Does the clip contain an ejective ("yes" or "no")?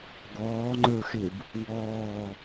no